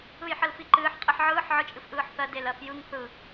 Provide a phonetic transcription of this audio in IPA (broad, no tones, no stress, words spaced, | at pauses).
ɯjħəlfiǃɨːħ qʼɨħʕɯːħ ʕɯt͡ʃʼɨfʔɯːħθɜ delɜfjɯŋ θɯ